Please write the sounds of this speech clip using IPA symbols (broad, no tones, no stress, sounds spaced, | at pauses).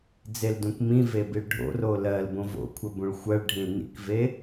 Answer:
d͡z e l d ũ k m ĩ v e b i ɭ ɖʱ o̰ r o l ɜ l b õ v o̰ kʷʰ ɜ b ũ ɭ xʷ ɜ ɭ ɖʱ ĩ l n ḭ k v e